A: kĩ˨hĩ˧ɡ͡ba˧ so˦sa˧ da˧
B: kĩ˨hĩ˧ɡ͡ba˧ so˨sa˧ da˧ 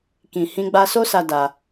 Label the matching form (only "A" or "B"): A